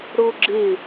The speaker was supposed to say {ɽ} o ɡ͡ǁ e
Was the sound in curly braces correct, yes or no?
yes